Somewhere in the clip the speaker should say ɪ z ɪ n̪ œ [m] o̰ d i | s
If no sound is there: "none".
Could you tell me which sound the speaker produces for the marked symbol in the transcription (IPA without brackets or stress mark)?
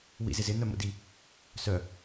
m